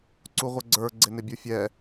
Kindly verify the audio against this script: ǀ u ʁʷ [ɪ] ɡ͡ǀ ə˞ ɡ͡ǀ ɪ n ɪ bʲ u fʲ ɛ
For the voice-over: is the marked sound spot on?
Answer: no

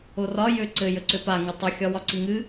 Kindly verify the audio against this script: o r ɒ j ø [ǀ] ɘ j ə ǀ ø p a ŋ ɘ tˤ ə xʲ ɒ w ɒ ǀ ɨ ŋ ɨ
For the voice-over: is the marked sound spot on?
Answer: yes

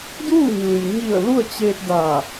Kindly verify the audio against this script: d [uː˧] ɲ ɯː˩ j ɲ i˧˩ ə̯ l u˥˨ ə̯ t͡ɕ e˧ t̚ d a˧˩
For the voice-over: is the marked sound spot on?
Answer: no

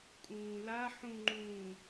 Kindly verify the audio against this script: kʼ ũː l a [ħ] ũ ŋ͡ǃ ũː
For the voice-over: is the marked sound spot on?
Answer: yes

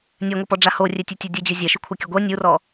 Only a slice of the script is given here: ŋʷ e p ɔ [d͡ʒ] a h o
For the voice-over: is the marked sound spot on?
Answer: no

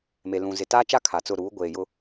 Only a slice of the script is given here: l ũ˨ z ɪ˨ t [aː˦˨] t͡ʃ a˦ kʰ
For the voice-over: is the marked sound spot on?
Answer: no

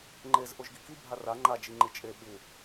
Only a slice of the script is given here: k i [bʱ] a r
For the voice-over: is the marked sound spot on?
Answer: yes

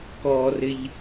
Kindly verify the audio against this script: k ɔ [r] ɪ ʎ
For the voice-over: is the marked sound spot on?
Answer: yes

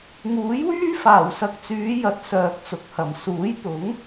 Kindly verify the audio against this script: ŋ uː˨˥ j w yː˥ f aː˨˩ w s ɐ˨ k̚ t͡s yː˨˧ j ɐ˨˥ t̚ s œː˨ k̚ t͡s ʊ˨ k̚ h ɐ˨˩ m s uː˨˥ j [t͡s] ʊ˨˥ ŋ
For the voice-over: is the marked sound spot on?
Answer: no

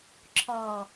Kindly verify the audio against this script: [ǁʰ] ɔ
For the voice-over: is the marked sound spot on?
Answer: yes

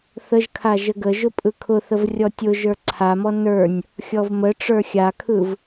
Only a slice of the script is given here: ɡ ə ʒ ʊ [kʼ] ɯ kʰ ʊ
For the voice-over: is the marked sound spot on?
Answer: no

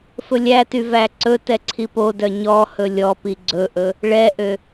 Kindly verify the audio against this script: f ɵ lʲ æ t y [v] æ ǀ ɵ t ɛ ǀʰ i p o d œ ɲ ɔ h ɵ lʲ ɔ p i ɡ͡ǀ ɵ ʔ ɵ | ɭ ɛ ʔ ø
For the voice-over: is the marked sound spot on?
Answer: yes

